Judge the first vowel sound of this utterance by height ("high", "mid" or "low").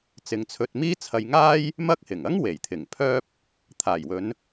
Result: high